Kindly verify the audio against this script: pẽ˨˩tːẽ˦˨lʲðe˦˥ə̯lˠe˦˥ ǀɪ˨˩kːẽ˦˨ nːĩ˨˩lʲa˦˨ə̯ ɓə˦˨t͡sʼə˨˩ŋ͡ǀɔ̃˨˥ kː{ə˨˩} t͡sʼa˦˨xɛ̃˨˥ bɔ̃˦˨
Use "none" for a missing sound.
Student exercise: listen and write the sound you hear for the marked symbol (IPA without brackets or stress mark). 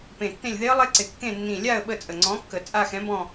ə˨˩